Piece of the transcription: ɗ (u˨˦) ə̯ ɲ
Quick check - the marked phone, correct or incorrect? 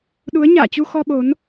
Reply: correct